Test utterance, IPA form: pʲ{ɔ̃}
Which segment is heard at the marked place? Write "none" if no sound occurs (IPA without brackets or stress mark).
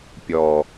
ɔ